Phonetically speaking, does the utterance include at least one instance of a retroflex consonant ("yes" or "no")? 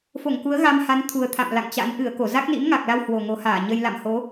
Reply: no